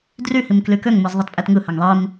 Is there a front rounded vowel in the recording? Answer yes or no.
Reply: yes